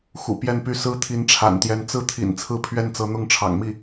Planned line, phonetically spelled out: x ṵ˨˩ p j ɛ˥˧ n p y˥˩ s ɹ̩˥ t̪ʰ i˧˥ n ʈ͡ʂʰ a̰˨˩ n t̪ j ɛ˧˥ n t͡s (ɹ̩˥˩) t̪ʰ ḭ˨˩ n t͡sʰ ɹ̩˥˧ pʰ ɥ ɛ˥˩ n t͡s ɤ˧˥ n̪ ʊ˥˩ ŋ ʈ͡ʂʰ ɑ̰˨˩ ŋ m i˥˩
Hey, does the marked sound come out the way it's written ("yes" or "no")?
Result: yes